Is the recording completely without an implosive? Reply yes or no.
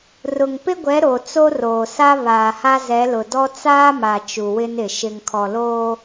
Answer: yes